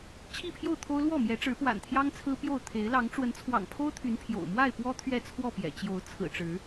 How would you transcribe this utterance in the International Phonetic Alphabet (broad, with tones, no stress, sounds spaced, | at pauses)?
t͡ɕʰ i˥˨ pʰ j o˥˨ ʊ̯ t̪ʰ o˦ ʊ̯ l w ɔ˥˨ m j ɛ˨˦ ʈ͡ʂ ɻ̩˨˦ p w a̰˨˩ n t̪ʰ j ɑ˦ ŋ t͡sʰ ɹ̩˦ p j o˥˨ ʊ̯ t̪ʰ e˨˦ ɪ̯ l ɑ˨˦ ŋ ʈ͡ʂ w ə˨˦ n t͡sʰ w ɑ̰˨˩ ŋ pʰ o˦ ʊ̯ t̪ʰ y˨˦ n pʰ j o̰˨˩ ʊ̯ m w a˥˨ ɪ̯ p w ɔ˦ t̪ʰ ɥ ɛ˥˨ t͡sʰ w ɔ˥˨ p j ɛ̰˨˩ t͡ɕ j o˨˦ ʊ̯ t͡sʰ ɹ̩˨˩ ʈ͡ʂ ɻ̩˨˦